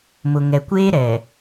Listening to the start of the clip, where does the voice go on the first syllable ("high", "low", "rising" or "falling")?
low